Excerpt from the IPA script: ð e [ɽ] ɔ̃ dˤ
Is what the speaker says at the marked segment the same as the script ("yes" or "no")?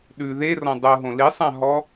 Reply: no